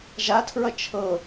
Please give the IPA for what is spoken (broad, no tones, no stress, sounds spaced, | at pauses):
ʒ a tʰ ɹ ʌ t͡ʃʰ ɤ